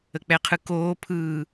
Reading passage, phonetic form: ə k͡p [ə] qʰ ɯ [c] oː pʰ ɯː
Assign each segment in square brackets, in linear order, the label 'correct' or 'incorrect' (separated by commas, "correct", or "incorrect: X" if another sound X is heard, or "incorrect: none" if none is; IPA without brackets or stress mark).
incorrect: ɛ, incorrect: k